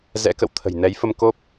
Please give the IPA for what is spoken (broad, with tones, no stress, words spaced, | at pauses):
zɛ̰˧˥kə̰˧˨w t̪ʰə̤˨˩jnɛ˨˦jfə˧m ko˦˥p̚